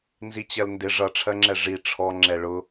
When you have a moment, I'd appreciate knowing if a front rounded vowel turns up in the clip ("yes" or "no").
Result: no